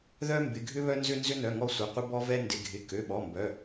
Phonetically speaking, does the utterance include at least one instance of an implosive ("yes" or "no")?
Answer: yes